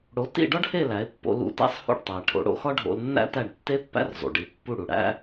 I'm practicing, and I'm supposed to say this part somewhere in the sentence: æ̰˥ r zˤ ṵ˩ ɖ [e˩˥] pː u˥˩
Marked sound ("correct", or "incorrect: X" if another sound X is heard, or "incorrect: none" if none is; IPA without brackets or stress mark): incorrect: i˩˥